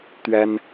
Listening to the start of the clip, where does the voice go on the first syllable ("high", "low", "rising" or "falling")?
high